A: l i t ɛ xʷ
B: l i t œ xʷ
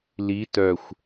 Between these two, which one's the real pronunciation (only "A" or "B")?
B